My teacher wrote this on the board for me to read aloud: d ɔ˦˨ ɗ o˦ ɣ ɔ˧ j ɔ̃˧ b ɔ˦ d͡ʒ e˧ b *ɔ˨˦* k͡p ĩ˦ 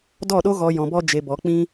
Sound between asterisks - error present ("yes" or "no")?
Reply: no